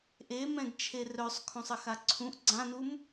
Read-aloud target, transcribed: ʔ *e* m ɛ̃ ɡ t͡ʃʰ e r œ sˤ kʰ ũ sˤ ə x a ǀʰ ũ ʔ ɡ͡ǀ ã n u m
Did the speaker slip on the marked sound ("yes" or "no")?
no